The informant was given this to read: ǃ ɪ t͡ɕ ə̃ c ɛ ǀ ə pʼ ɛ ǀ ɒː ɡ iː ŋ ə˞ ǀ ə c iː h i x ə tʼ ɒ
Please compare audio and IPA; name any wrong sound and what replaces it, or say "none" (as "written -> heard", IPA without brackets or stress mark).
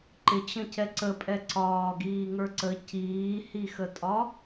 none